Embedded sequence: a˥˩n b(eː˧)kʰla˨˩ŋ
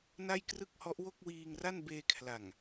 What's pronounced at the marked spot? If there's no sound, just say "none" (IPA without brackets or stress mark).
eː˧